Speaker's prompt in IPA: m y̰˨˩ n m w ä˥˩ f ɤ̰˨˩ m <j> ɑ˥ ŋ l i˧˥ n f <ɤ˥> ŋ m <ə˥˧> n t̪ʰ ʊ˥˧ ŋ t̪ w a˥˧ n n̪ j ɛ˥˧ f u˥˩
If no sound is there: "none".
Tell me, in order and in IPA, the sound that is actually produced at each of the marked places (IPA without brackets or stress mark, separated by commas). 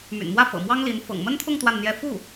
w, ɤ̰˨˩, ə˥